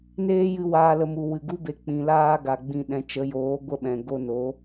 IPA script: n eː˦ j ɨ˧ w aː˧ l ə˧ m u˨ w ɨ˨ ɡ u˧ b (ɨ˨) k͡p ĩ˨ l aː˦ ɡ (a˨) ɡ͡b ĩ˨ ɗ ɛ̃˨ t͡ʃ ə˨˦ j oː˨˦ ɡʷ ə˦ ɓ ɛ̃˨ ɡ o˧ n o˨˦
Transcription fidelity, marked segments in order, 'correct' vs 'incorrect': incorrect, correct

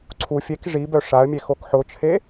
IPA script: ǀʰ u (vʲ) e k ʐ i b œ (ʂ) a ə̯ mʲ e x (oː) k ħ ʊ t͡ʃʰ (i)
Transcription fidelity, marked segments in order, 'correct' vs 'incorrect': incorrect, correct, incorrect, incorrect

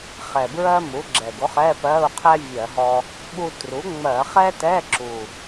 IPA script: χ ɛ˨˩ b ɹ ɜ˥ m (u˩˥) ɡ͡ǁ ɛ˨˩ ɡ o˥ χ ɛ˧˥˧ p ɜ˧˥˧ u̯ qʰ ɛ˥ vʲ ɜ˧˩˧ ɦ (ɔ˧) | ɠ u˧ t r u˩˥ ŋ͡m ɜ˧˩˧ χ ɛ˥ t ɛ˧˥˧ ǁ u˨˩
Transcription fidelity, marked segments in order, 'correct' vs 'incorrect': correct, correct

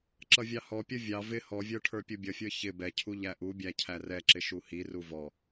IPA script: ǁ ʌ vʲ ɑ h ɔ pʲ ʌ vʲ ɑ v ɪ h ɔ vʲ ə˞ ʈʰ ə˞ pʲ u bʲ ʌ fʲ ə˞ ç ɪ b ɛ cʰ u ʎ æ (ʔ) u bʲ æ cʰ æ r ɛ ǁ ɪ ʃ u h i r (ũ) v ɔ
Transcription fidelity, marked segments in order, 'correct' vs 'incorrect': correct, incorrect

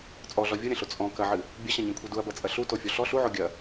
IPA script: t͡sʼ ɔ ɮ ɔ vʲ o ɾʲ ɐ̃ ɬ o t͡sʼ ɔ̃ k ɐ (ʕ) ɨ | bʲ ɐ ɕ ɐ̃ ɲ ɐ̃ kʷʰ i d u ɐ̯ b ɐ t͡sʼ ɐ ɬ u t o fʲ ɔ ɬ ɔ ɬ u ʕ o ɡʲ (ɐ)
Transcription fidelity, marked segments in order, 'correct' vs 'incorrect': correct, correct

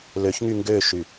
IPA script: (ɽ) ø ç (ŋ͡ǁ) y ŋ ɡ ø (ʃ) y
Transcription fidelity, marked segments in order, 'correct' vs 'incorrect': incorrect, incorrect, correct

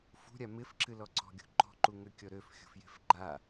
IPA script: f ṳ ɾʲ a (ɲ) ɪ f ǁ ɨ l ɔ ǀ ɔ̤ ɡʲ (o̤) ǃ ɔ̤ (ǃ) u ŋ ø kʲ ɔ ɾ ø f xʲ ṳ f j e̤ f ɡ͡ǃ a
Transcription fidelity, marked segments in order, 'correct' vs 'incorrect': incorrect, correct, correct

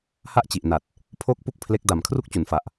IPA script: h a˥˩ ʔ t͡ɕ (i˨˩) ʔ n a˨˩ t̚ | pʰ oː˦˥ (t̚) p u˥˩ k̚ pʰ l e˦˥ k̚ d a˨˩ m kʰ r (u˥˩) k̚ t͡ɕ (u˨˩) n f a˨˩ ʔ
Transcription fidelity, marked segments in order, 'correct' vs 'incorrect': correct, incorrect, correct, correct

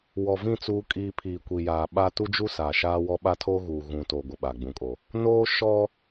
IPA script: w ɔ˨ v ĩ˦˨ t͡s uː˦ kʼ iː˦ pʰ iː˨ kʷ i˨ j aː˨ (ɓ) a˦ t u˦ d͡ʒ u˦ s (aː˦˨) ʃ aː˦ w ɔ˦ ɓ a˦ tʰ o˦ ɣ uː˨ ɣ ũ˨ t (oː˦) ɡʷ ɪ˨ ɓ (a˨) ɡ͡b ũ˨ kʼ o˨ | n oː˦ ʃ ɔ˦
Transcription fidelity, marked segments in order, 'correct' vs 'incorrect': correct, incorrect, incorrect, correct

